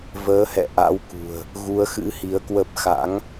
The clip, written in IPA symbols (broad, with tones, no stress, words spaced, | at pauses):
vəː˨˦hɛ̰˧˨ ʔa̰˧˥wkṳ˨˩ə̯ | ɣu˨˦ə̯xɨ̰˧˥hi˨˦ə̯kwə˦˥p̚ xa̰˧˥ŋ